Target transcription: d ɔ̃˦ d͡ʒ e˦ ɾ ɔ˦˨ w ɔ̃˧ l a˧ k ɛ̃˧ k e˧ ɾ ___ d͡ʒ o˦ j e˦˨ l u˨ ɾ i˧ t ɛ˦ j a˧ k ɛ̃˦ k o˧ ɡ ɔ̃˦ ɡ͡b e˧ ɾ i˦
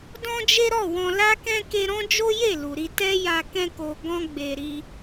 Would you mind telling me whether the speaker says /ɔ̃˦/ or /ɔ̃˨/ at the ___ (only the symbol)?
ɔ̃˦